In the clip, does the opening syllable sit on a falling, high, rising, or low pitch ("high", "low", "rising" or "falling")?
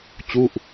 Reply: falling